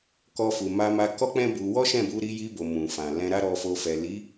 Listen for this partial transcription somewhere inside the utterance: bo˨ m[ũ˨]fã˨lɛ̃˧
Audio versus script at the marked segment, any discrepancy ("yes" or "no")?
no